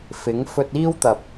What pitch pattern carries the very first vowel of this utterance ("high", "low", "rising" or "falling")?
rising